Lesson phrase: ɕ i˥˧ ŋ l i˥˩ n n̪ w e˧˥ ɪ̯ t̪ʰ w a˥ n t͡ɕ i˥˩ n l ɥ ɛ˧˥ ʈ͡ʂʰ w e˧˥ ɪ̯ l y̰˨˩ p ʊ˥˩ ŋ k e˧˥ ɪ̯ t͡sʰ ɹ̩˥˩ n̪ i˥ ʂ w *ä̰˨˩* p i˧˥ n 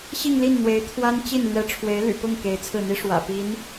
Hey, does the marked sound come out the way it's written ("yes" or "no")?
yes